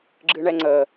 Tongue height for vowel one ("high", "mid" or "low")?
high